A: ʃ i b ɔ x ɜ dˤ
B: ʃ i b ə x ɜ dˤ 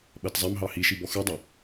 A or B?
A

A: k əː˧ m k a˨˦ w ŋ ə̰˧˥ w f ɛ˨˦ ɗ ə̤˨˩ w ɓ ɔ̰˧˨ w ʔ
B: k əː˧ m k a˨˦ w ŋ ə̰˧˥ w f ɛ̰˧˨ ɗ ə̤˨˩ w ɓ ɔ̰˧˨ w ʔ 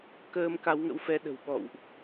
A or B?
A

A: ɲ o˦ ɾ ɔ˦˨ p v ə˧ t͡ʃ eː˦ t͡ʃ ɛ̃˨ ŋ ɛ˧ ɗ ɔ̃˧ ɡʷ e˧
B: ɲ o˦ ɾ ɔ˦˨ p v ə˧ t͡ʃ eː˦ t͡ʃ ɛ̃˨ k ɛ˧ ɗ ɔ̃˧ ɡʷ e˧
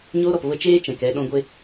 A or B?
B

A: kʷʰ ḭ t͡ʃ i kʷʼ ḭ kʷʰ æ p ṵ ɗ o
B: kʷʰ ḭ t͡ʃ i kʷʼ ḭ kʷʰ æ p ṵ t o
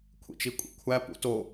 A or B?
B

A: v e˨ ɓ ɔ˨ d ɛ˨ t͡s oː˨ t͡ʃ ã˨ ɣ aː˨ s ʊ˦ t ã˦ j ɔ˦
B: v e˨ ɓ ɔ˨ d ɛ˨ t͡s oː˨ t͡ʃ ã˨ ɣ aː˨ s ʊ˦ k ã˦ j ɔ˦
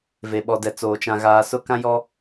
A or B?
B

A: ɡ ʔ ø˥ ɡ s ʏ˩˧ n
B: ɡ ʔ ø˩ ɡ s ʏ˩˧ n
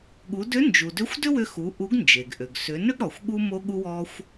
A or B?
B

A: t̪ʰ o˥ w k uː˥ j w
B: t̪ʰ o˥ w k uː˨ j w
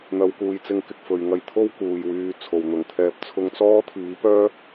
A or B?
B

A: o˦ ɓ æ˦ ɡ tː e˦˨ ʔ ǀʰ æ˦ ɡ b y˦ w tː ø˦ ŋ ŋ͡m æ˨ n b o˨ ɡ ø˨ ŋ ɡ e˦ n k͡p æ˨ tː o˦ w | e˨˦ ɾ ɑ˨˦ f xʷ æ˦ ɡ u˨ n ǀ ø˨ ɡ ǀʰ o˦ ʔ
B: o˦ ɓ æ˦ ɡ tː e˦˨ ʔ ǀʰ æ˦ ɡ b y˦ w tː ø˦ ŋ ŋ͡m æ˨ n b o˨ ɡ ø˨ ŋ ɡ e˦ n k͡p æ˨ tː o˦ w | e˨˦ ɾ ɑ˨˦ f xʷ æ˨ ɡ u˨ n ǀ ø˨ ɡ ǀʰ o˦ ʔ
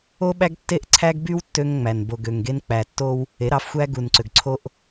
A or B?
A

